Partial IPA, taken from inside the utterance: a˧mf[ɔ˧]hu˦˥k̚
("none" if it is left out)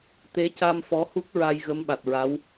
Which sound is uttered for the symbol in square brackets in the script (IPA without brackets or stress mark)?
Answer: ɔ˧˥